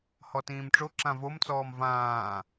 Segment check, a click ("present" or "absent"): present